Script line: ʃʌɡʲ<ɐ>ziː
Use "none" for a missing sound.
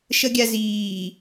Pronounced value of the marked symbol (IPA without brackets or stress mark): a